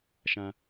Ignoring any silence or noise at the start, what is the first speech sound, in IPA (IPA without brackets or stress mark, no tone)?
ʃ